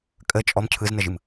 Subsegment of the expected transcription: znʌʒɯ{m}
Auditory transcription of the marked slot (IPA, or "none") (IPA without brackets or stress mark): m